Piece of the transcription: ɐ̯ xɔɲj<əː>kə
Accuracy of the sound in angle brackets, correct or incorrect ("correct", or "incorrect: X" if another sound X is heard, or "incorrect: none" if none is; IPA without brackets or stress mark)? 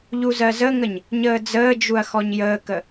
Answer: correct